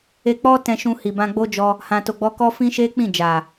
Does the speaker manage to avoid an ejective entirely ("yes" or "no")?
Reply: yes